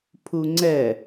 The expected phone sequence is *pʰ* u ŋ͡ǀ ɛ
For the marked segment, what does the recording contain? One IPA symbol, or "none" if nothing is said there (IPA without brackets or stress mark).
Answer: pʰ